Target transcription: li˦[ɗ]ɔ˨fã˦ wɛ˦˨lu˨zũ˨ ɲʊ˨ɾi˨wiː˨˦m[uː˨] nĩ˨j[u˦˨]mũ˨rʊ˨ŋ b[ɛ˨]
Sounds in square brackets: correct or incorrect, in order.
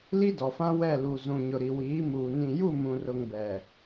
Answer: incorrect: d, correct, correct, correct

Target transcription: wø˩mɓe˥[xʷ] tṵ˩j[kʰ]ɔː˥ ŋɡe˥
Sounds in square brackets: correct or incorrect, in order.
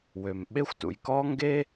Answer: correct, incorrect: k

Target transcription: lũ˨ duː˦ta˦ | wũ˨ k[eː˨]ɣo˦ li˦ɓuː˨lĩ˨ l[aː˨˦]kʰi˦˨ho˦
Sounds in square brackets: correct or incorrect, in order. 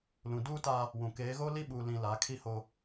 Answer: incorrect: eː˨˦, correct

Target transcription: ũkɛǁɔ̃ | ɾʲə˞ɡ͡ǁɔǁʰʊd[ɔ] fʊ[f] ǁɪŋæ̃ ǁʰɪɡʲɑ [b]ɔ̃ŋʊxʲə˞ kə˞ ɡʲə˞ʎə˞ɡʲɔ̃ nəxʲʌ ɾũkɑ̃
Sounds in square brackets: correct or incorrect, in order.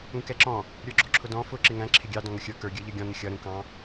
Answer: incorrect: ɔ̃, incorrect: none, incorrect: d

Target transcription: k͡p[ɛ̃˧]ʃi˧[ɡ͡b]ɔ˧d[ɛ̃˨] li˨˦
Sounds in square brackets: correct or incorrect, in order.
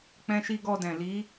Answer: correct, incorrect: ɡ, correct

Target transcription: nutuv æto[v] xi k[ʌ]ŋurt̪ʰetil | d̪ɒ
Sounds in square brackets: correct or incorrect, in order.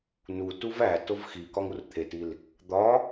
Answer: correct, incorrect: ɒ

